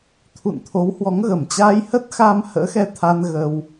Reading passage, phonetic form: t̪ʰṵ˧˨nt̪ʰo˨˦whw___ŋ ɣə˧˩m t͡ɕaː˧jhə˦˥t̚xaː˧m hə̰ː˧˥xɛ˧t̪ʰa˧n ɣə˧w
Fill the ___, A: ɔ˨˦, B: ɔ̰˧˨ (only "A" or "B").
A